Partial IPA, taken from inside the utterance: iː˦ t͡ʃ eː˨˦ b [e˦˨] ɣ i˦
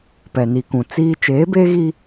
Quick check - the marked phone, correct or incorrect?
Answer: incorrect